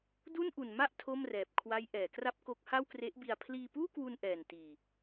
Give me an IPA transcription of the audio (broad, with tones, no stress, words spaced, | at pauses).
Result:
du˥˩nʔu˨˩nma˥˩ʔ tʰo˥˩mrɛː˨˩p̚ kʰwa˦˥jʔɛː˩˦kra˥˩p̚ko˦˥k̚ ha˥˩wkre˦˥ʔbi˧a̯ pʰliː˧puː˥˩kwu˧n ʔɛː˨˩ntiː˨˩